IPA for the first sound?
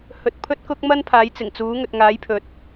h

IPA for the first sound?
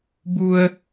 b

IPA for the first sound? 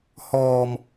h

